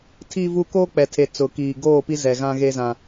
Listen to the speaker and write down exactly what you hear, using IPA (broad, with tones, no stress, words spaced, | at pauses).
tʰi˨vu˨ koː˦k͡pɛ˨tʰe˨ t͡sʊ˨kiː˨ɡoː˦˨pi˦ zɛ˨ɣã˦ɣe˦zã˦